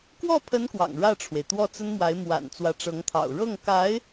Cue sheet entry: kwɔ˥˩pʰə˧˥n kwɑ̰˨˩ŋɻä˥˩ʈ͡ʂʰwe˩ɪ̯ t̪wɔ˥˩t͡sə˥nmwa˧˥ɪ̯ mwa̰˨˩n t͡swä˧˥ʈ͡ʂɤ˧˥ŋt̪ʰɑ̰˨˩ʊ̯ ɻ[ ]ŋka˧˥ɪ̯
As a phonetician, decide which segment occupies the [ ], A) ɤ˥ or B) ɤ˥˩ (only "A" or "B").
B